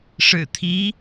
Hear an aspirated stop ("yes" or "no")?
yes